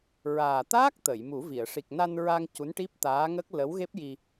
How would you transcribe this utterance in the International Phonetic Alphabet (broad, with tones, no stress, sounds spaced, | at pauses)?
ɹ aː˨˩ t̪ aː˦˥ k̚ t̪ ə˨˩˨ j m u˨˩˦ v i˨˩˨ ə̯ ʂ i˨˩ k̚ n a˧ n ɹ a˧ ŋ c u˧˥ n ʈ i˦˥ p̚ t̪ aː˧˥ ŋ ə˦˥ k̚ l ə˧˥ w ɣ e˦˥ p̚ j i˧